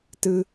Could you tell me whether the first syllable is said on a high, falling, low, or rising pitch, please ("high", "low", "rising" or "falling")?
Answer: high